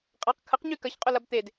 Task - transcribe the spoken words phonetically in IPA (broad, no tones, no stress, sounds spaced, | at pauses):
qʼ a q kʰ ə q ɲ y k ɐ ç qʼ ʊ l ɐ b t̪ e d